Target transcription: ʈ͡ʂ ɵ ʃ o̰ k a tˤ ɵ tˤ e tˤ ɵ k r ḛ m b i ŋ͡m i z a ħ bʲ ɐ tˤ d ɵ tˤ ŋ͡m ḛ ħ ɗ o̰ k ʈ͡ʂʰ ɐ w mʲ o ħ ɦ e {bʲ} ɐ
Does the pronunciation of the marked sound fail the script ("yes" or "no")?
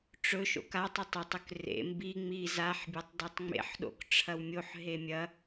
yes